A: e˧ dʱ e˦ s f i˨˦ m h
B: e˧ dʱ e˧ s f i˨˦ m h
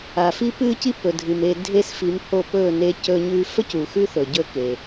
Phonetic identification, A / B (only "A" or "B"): A